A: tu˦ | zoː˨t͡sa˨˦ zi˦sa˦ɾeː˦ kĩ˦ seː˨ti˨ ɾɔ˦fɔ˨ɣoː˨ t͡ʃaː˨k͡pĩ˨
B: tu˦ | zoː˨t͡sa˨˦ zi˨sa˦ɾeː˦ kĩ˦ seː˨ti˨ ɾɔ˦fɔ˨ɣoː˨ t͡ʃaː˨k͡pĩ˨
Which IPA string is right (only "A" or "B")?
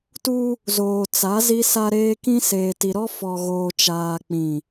A